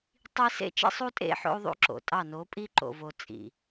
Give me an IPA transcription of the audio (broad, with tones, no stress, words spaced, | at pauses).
tˤi˦ sḛ˦t͡ʃḛ˦sˤu˦tʼḛ˦˨ ħo̰˦u̯ðˤṵ˦ǁo̰˨tʼɑ˦˨ no˨˦pʼi˦ǃo̰˨vo˨ t͡sʼḭ˨